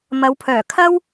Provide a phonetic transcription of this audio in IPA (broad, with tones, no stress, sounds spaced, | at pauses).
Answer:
m ɐ˨˧ w pʰ œː˨˩ kʰ ɐ˥ w